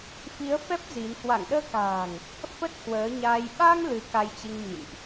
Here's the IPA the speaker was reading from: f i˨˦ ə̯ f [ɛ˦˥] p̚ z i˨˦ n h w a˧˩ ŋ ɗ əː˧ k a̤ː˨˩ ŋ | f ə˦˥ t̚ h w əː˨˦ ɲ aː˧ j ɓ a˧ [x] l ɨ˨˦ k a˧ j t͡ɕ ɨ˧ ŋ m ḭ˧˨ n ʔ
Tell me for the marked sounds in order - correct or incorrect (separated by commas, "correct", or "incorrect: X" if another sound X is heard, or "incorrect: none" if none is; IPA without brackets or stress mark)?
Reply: correct, incorrect: ŋ